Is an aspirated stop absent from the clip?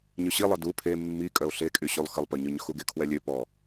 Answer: no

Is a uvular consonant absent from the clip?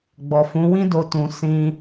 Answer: yes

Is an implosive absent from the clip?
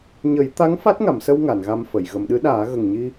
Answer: no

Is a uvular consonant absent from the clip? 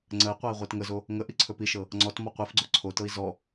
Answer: no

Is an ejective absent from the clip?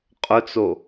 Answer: no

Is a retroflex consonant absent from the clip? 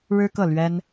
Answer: no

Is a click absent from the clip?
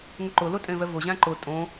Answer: no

